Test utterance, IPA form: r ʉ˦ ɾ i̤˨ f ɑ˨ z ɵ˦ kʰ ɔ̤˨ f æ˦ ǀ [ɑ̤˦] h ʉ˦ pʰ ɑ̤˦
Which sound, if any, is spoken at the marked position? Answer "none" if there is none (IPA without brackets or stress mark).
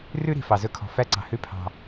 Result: ɑ̤˨